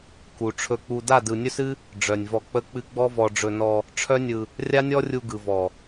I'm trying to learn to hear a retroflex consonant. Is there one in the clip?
yes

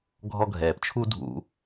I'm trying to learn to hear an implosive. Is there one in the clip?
no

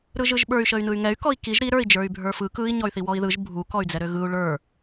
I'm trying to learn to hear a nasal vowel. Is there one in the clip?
no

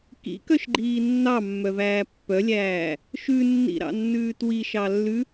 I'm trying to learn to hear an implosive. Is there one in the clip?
no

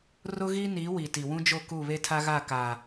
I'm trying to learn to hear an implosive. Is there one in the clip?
no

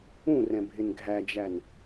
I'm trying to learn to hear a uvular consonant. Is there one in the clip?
no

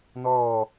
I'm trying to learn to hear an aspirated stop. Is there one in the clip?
no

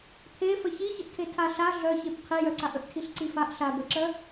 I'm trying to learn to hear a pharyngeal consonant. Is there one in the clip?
no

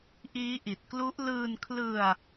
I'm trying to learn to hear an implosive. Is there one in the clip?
no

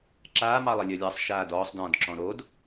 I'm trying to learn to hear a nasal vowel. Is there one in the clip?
yes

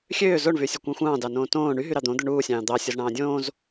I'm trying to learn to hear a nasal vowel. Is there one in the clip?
yes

